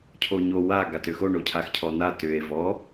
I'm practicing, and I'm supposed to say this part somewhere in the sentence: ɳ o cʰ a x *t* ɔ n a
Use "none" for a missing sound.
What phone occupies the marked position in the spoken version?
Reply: cʰ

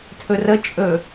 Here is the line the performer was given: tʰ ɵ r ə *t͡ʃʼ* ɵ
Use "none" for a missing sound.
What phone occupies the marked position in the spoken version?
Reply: t͡ʃʼ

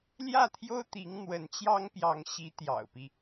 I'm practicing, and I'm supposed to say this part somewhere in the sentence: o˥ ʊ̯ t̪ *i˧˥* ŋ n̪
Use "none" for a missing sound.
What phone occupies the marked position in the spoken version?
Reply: i˧˥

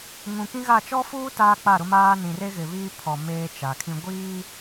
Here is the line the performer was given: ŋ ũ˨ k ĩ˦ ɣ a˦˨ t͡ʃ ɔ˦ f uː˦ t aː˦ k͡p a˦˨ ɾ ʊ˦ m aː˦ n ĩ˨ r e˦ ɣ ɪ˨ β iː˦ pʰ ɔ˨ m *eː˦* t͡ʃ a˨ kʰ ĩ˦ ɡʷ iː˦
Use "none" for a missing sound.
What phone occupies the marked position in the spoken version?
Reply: eː˦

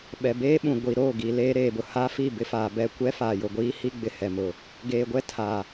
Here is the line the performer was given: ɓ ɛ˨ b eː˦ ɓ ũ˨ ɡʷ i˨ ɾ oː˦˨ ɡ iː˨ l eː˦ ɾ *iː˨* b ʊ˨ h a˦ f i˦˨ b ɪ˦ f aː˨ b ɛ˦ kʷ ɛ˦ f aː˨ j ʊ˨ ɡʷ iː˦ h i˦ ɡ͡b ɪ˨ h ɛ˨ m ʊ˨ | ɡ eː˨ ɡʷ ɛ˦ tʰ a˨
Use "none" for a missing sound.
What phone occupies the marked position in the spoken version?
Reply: eː˨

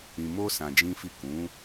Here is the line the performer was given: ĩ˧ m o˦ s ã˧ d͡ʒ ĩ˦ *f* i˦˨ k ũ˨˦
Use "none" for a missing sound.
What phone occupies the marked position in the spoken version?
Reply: f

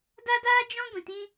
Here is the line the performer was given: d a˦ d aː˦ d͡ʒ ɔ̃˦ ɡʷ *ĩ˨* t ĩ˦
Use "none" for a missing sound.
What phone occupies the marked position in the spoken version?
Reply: ĩ˨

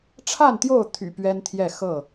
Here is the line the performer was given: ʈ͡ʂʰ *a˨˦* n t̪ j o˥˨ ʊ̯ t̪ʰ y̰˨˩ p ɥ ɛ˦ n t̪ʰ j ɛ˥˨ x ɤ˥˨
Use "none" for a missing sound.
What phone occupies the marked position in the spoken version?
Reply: a˥˨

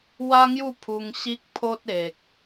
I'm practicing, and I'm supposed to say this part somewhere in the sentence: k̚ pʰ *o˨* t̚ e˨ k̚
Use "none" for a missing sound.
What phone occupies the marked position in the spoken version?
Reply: o˦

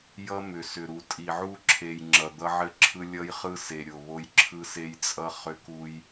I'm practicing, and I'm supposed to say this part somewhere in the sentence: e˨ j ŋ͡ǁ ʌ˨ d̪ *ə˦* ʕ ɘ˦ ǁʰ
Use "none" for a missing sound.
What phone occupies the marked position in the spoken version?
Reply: ʌ˦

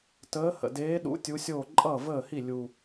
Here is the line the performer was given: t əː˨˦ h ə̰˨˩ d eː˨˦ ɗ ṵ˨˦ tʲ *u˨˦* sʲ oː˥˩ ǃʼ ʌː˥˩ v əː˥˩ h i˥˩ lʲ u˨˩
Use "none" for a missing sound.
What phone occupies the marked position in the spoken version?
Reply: u˨˦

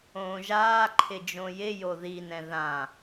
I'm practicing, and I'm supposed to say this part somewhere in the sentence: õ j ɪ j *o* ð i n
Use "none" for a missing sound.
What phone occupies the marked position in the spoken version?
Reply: o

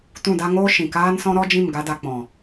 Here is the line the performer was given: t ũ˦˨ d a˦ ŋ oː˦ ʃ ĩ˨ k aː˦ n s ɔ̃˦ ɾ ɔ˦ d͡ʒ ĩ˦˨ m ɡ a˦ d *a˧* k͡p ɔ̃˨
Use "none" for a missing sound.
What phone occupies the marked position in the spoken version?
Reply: a˧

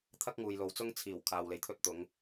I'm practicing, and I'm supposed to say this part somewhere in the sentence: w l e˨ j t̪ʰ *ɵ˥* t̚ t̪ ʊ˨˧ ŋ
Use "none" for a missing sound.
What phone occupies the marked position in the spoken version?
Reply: ɵ˥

